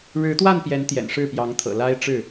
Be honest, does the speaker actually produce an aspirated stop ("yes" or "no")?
yes